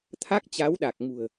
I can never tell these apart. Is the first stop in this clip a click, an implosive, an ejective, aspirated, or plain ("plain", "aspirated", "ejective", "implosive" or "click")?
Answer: aspirated